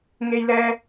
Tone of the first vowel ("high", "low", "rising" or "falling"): high